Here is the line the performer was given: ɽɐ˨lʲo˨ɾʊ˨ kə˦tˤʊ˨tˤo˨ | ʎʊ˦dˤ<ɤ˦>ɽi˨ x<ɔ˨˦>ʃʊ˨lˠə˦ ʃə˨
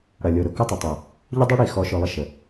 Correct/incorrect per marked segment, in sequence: incorrect, correct

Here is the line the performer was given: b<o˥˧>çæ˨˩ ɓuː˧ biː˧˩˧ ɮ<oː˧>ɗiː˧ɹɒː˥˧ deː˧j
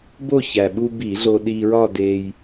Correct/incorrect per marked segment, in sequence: correct, correct

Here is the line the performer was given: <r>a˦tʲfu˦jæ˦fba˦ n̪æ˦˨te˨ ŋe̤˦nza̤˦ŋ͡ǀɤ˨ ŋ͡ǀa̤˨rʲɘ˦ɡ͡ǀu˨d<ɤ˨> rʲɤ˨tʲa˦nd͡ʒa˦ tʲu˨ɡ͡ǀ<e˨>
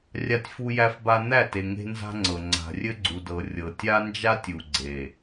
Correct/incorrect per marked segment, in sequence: incorrect, correct, correct

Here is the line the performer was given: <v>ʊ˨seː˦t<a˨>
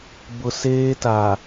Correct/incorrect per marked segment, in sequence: incorrect, correct

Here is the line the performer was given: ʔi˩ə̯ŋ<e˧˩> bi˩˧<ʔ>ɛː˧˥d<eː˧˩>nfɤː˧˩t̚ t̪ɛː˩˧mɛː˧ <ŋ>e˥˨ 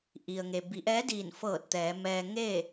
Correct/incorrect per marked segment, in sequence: incorrect, correct, incorrect, correct

